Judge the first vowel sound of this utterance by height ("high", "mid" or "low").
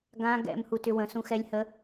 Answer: low